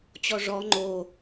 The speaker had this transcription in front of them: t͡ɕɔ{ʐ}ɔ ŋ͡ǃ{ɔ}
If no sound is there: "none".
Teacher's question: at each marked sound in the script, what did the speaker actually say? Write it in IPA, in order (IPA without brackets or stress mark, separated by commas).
ʐ, o